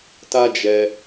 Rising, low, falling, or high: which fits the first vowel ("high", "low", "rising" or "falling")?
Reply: high